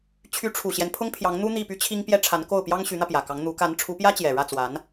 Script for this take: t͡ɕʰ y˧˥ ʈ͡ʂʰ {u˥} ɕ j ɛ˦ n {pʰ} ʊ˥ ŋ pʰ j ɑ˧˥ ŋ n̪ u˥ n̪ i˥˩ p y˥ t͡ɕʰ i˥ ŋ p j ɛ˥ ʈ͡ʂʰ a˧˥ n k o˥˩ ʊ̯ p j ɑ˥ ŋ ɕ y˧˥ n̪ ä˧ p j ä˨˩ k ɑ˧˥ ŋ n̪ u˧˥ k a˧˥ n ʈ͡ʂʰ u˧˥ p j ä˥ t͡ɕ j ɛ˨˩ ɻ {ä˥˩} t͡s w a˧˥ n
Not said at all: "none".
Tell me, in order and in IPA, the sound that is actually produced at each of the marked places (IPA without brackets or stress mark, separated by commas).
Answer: u˨˩, pʰ, ä˥˩